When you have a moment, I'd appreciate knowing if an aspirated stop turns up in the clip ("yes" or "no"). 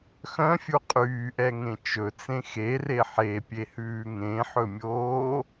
no